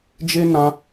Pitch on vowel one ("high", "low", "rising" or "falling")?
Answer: high